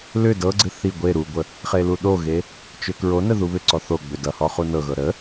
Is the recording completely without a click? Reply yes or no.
no